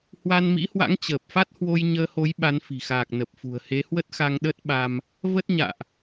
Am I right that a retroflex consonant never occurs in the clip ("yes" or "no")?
yes